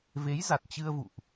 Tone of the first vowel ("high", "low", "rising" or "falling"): rising